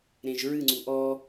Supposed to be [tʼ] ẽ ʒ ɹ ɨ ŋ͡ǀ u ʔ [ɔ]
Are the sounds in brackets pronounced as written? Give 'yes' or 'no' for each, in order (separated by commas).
no, yes